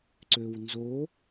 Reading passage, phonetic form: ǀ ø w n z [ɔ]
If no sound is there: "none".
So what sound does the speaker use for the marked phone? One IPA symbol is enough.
o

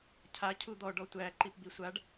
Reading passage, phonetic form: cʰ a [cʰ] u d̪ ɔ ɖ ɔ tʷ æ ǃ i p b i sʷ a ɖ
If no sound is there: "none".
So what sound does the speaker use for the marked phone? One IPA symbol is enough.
cʰ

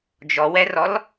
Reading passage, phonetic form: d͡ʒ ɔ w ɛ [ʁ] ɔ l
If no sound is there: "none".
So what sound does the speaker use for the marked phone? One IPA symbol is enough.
r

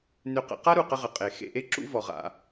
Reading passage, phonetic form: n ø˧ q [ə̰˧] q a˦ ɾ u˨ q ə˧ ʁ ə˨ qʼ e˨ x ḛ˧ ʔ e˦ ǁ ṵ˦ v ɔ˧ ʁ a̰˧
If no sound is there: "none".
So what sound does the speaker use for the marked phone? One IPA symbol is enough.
ə̰˧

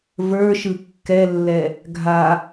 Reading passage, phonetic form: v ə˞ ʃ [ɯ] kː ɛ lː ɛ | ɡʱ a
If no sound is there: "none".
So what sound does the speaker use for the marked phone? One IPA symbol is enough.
ɯ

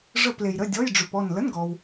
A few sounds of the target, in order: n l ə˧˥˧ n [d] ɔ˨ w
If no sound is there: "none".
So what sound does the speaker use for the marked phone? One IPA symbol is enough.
ɡ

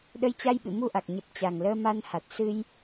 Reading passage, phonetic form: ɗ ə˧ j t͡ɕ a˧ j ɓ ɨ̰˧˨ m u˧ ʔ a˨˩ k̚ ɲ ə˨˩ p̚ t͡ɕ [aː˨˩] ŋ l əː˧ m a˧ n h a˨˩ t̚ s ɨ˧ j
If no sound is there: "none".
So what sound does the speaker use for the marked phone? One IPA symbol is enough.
a˨˩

